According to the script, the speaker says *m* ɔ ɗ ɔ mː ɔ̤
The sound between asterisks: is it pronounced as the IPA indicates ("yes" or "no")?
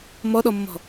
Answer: yes